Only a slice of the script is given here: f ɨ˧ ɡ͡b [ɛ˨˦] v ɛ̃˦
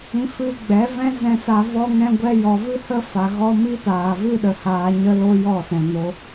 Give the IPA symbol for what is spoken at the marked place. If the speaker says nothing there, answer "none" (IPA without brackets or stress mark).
ɛ˨˦